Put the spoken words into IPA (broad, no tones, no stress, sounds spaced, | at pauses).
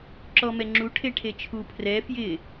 ǁ ɔ m ɛ ŋ͡ǁ u ʈʰ e ʈʰ e t͡ʃʰ u pʰ r ɛ f j ɪ